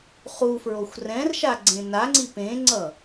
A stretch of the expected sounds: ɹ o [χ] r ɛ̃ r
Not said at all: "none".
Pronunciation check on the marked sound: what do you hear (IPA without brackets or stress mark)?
xʷ